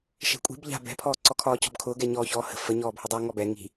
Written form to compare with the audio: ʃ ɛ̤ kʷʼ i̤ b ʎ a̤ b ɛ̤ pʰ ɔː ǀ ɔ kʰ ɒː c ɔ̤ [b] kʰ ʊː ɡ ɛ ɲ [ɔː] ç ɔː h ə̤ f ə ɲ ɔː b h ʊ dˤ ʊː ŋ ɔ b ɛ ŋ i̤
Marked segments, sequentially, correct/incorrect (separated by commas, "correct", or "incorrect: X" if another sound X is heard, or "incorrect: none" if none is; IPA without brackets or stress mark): correct, correct